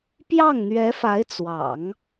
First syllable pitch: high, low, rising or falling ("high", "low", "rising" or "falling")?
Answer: falling